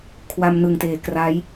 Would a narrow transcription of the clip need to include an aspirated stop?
yes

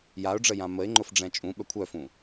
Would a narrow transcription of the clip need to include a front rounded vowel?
yes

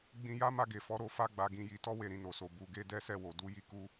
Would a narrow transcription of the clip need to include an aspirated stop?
no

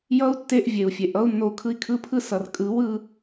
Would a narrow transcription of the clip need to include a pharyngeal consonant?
no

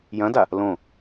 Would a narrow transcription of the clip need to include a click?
no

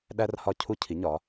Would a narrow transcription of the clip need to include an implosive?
yes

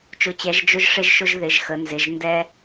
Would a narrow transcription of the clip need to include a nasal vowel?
no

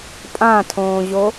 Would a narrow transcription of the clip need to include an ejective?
yes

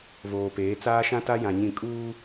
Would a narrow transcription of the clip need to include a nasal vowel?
yes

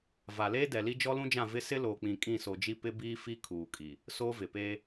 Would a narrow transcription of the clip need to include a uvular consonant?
no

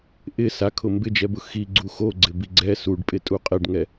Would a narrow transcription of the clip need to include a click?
yes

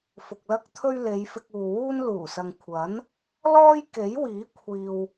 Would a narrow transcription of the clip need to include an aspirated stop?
yes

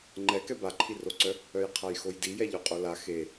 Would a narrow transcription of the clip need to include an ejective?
yes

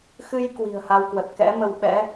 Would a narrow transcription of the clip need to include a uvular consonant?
no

